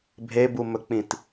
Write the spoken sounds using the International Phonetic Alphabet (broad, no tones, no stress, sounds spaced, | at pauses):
bʱ e b u m ɵ k͡p ĩ t